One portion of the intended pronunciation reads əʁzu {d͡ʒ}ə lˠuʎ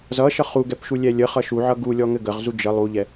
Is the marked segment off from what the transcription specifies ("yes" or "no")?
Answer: no